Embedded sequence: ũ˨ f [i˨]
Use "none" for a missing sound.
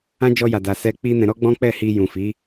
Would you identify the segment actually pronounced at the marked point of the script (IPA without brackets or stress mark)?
i˨˦